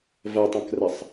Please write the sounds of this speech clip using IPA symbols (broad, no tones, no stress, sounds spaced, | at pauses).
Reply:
v ɐ tˤ ɐ̃ k r ɐ sˤ